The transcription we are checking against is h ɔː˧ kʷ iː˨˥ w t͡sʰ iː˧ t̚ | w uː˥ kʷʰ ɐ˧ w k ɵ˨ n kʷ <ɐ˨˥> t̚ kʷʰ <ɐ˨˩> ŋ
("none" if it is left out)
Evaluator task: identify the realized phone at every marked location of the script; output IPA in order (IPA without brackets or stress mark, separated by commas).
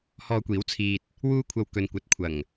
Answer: ɐ˨˥, ɐ˨˩